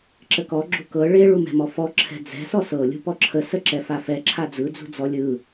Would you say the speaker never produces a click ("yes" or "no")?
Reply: no